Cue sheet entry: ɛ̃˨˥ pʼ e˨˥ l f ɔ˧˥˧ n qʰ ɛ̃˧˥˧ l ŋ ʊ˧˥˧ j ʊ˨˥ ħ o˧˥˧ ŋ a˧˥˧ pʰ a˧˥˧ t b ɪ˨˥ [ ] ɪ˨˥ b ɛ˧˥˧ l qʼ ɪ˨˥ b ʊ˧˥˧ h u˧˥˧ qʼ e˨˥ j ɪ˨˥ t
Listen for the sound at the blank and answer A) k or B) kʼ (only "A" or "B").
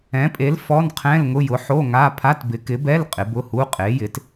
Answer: A